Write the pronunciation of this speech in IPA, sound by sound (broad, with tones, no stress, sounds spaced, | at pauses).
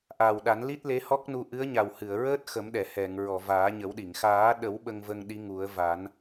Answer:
ʔ aː˨˩ w ɗ a˨˩˦ n l i˦˥ t̚ l e˧˥ h ɔ˦˥ k̚ n u˧ ʔ ɨ˧˥ ə̯ ɲ a˨˩ w h ɨ˨˩˨ ə̯ ɹ əː˦˥ t̚ x ə˨˩˦ m ɗ ɛ˨˩˨ h ɛ˨˩˨ ŋ ɹ ɔ˨˩˨ v aː˨˩˦ ɲ ə˨˩˦ w ɗ i˨˩˨ ŋ x aː˨˩˦ ɗ ə˨˩˦ w ɓ ə˧ ŋ v ə˧ ŋ ɗ i˧˥ ŋ u˨˩˦ ə̯ v a˨˩˦ n